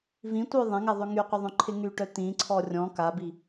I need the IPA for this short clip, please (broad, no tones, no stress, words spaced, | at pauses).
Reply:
vĩtʷœ ðˤɛ̃ŋɛðˤʏ ŋyqʷɪðˤœ̃ǃʰɪ ŋyʈœ t̪ĩǀʰɔ rʲɔ̃ kabi